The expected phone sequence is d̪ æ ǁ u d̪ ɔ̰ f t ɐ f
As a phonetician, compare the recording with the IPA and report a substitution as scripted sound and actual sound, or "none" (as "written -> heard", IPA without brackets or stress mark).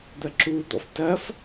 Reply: æ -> ɐ